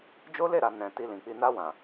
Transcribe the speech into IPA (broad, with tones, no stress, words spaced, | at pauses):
d͡ʒo˦le˦˨ɾa˨ nɛ̃˨ ti˧lĩ˨k͡pi˧ na˧wã˨